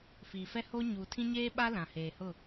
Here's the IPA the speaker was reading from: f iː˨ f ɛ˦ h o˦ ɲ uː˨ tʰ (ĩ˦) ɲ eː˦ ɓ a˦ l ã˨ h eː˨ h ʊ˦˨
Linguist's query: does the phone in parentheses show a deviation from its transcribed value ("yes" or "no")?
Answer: no